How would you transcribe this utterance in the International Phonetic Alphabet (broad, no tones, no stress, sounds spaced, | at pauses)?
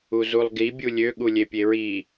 u z u lˠ ɡ i bʲ u lʲ ø ɠ u lʲ e pʲ e ɹ i